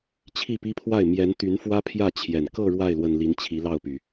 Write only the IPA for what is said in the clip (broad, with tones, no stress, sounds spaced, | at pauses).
t͡ɕʰ i˥˩ p i˥ pʰ w a˥˩ ɪ̯ m j ɛ˧˥ n t̪ y˧˥ n f w ä˥ pʰ j ä˥˩ t͡ɕʰ j ɛ˨˩ n k ɤ˥˧ ɻ w a˥˩ ɪ̯ l w ə˨˩ n l i˧˥ n t͡ɕʰ i˧˥ l ɑ˥˩ ʊ̯ p y˩